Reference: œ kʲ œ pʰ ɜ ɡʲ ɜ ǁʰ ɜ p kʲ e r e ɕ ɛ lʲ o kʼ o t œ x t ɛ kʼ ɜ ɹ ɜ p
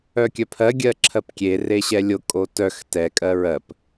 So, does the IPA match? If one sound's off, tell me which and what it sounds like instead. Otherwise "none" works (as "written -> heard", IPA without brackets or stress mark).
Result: none